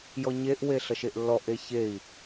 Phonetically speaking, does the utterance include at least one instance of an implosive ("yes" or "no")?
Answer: no